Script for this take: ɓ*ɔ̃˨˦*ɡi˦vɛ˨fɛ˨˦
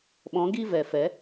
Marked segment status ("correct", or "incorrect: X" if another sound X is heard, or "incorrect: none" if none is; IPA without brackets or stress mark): correct